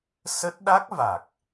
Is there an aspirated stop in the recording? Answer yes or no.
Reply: no